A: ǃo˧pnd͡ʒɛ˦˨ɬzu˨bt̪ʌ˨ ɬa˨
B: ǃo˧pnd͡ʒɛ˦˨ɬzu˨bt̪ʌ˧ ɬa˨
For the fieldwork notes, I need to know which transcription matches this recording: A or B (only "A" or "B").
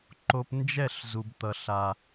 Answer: A